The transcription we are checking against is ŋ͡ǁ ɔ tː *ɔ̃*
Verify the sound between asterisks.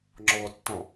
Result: correct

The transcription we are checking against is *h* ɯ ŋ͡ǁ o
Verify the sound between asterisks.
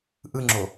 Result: incorrect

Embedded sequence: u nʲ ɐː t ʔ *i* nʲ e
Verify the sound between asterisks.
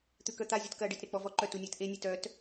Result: incorrect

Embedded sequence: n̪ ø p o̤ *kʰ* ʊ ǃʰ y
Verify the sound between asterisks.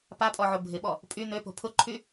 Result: incorrect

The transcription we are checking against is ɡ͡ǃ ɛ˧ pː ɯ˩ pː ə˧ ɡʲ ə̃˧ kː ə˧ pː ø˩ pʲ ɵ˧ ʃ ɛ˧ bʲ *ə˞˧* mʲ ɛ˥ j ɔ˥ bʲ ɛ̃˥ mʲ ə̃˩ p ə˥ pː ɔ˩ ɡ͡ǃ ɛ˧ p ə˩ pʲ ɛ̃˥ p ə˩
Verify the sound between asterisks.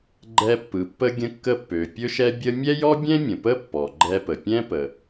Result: incorrect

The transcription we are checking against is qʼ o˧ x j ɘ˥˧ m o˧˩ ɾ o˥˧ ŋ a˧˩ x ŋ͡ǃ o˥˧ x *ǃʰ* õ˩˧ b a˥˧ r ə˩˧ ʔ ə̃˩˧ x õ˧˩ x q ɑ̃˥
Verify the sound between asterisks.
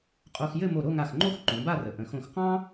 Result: incorrect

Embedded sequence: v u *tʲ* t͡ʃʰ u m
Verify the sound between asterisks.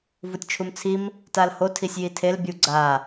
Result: correct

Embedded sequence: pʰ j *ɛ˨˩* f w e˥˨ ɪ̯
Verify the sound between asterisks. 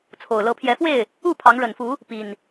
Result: incorrect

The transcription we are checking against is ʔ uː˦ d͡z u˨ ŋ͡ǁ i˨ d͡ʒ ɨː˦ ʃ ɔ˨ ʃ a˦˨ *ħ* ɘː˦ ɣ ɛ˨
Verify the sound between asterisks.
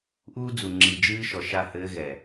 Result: incorrect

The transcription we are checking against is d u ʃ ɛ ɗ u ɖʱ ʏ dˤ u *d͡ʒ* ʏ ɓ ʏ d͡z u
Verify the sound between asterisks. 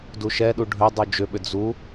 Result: correct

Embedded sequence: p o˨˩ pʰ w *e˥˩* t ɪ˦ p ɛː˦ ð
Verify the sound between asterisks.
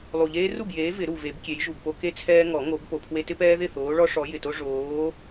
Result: incorrect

